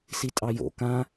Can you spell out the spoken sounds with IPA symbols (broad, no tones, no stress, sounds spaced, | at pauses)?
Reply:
s i tʼ ɑ j o̰ k ã